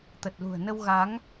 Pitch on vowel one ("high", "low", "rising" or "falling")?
low